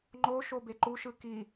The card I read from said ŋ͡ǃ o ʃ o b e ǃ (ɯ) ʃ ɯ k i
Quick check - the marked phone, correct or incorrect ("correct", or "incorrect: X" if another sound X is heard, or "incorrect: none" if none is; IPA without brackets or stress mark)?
incorrect: u